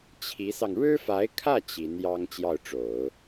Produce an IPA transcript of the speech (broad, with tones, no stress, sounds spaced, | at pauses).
t͡ɕʰ i˧˥ s ɑ˧ ŋ ɻ ɻ̩˥ f a˧˥ ɪ̯ kʰ ä˥˩ t͡ɕ i˧˥ n j ɑ˥ ŋ t͡ɕ j ɑ˥˩ ʊ̯ ʈ͡ʂ o˨˩˦ ʊ̯